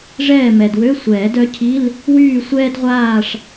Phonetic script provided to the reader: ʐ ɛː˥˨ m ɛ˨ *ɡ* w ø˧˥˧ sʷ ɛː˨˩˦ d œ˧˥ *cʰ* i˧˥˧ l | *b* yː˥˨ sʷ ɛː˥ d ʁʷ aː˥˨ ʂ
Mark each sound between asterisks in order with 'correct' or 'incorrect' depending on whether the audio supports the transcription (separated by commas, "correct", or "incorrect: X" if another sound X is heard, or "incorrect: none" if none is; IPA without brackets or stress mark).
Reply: incorrect: d, correct, incorrect: w